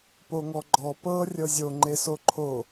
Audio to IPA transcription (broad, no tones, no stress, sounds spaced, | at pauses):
p o ŋ ɔ ɡ͡ǃ ɔ p ɤ rʲ ɤ zʲ o ŋ͡ǃ e s o ǃʰ o